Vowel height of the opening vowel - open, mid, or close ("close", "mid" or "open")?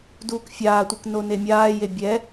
close